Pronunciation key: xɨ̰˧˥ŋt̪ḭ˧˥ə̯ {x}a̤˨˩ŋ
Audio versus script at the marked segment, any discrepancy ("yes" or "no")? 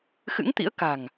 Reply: yes